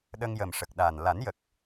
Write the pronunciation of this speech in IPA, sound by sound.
ɗ ə˧ ŋ j ə˨˩ m ʂ ə˨˩ k̚ ɗ a˨˩ n l a˨˩˦ n j ə˨˩ k̚

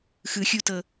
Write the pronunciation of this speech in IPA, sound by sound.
x ɯ xʲ u t ɤ

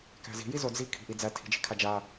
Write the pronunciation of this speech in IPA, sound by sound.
k æ̤ z i̤ j i z o d͡z i kʰ i̤ ʔ i d͡z æ tʰ i̤ d͡ʒ i̤ kʰ a d͡ʒ a

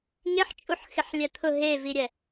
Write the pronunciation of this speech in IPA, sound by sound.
ŋ ɪ ħ t͡ʃʼ u ħ x ɪ ħ lʲ ɛ t̪ʰ ʊ ɦ e v i ɾʲ ɛ

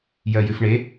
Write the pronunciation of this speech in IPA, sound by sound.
j ɜ j ʉ f ɳ e

